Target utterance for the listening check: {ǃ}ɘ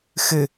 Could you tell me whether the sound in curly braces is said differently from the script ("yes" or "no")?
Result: yes